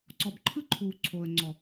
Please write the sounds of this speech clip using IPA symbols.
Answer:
ǀ ɔ˨ b ǃʰ ɯ˦ ǃʰ uː˨ ǀʰ o˨ ə̯ ŋ͡ǀ ɔ˨

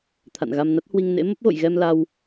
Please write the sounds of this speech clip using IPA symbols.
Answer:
t̪ʰ a̰˧˨ n ɣ a˧ m n a˦˥ t̚ h w i˧ ŋ n ḛ˧˥ m ə˦˥ p̚ ɣ o̰˧˨ j ɣ ɛ˧ m l a˧ w

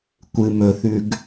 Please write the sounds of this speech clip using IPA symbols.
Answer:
kʷ ɨ m ɵ θ ʉ ɡ

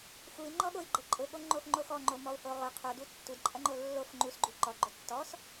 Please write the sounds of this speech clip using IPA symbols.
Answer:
x u i̯ ŋ͡ǃ ɔ ɠ o i̯ ɡ͡ǃ ə ǃʼ ʊ ɠ o ŋ͡ǃ o x ŋ͡ǃ o x ɔ ŋ͡ǃ o m ɔ u̯ h o ʁ ʊ qʰ o d u tː u d ǃʼ ɐ ŋ͡ǃ o lː o f ŋ͡ǃ u s ɡ͡ǃ u ǃ ɔ ɡ͡ǃ o tː ɔ s

